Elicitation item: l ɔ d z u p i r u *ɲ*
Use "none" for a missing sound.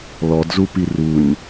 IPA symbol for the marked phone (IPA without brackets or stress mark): ɲ